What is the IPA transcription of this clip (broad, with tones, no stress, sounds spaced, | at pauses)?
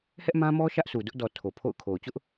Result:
h ɛ˦ ʔ m ã˦ m ɔ˦ ʃ ä˦ ʔ sʰ u˨ d ʊ˦ ʔ d ɔ˨ tʰ o˨ pʰ o̰˦˨ ʊ̯ kʰ o˨ ʊ̯ t͡ɕ ʊ˦ ʔ